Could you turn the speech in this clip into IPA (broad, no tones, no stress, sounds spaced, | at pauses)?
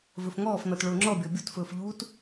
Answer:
v ɵ f ŋ ɔː f n ɔ t ɭ ʊː ŋ͡ǁ ɔ bʲ ɔ bʲ o t f ɵː f ʎ uː t